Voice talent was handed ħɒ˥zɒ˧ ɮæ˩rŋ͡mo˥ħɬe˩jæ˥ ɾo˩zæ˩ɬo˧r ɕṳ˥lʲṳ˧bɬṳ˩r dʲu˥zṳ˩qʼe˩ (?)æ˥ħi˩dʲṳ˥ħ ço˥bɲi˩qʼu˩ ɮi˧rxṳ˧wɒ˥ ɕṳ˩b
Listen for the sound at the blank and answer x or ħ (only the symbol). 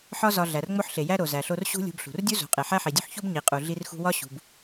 ħ